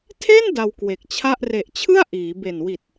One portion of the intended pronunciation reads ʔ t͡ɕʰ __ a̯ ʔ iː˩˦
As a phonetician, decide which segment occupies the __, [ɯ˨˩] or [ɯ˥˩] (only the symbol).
ɯ˥˩